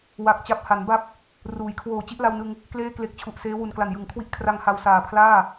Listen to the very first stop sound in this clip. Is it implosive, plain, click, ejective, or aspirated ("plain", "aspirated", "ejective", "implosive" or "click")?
plain